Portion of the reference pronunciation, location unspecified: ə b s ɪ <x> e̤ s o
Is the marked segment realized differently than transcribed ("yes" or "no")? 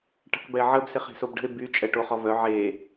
yes